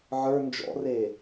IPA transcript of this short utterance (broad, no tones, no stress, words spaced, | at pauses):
ʕə˞ nd͡ʒɔ̰re